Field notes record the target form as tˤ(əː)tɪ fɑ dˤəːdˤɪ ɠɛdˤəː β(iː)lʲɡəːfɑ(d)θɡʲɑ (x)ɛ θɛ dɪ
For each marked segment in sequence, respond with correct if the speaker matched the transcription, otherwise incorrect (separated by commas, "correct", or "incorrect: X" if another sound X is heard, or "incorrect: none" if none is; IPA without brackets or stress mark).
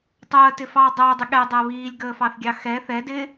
correct, correct, incorrect: none, correct